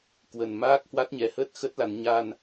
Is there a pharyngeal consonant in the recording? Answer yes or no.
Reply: no